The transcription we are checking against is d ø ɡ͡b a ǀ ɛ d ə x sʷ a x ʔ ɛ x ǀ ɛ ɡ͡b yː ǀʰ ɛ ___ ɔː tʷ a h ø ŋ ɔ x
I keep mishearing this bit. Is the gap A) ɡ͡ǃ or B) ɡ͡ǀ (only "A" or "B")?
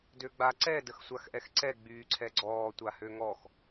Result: B